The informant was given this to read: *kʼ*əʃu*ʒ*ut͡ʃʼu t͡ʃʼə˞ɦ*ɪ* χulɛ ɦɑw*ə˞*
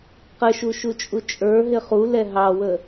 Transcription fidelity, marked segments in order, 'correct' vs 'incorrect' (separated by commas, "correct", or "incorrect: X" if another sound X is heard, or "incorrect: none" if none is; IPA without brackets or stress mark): incorrect: q, incorrect: ʃ, correct, incorrect: ə